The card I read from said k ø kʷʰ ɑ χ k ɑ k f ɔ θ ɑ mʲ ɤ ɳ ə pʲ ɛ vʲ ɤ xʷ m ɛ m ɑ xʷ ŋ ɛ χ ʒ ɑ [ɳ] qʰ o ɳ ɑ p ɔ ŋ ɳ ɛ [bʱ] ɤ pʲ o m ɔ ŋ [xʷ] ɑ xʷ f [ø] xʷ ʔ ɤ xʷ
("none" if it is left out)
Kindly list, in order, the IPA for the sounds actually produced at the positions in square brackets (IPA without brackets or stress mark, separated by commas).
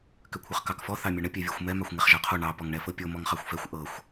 none, f, χ, ɛ